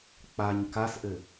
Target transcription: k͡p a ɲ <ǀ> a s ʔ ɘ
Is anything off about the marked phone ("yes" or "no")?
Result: yes